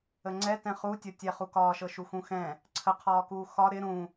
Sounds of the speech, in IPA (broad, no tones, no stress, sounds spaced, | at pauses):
ə ŋ͡ǀ ɛ t ɛ̃ χ u tʲ ɤ tʲ ɛ χ u k ɒː ʃ ɤ ʃ u x ũ x ɛ̃ | ǀʰ ə qʰ ɒː k uː x ɒ ɾ ɪ ɾ ũ